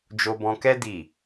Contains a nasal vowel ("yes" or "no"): yes